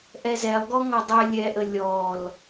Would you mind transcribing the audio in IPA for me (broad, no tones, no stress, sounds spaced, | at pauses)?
ʔ ɛ z ɛ lˠ ɡ ɔ ŋ ɔ dˤ ɛ lʲ ɛ ʔ ə lʲ ɔ l